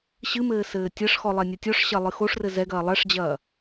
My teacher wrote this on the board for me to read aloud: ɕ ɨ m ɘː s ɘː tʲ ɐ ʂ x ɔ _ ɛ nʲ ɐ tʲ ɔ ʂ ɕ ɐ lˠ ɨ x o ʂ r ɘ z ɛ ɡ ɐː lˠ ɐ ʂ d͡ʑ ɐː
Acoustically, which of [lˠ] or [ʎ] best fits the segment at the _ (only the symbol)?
lˠ